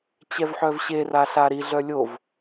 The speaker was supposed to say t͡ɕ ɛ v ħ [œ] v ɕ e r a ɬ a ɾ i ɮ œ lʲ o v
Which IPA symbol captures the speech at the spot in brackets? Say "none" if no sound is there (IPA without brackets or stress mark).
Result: œ